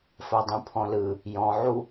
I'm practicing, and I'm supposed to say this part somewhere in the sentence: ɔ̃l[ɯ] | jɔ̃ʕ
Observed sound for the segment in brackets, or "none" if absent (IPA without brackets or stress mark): ɯ